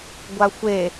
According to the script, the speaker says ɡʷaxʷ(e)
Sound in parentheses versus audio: correct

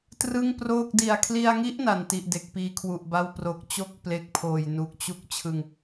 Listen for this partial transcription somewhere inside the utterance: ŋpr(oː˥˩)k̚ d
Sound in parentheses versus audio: correct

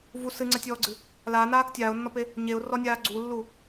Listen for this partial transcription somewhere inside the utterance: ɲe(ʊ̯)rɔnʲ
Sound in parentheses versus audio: correct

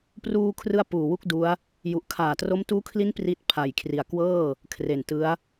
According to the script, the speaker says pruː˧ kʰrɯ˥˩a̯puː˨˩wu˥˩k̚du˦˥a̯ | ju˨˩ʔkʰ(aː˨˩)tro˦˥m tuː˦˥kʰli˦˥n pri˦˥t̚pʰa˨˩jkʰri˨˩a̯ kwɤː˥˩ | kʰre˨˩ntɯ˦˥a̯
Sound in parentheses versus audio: correct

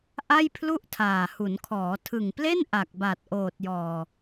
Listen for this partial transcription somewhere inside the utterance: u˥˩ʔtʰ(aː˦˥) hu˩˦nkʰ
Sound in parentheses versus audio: incorrect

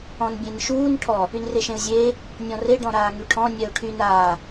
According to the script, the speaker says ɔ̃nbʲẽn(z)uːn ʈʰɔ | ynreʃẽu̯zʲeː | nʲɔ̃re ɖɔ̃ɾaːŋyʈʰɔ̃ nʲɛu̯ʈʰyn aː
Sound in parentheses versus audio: incorrect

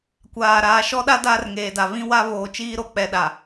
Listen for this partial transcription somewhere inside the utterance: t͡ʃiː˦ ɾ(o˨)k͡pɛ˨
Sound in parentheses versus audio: correct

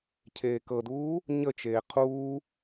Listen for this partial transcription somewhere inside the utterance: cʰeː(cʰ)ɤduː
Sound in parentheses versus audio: incorrect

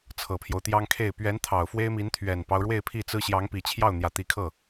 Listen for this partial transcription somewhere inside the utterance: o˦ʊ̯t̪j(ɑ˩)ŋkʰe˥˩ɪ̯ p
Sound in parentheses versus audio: incorrect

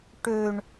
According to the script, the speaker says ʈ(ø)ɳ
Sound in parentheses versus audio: correct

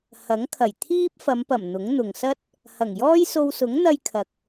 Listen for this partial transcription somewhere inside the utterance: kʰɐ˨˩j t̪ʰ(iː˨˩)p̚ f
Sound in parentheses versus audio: incorrect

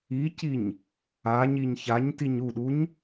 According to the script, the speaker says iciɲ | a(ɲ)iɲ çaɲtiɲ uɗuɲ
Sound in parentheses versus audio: correct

